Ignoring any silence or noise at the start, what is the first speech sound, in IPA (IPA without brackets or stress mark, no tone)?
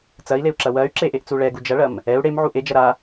t͡s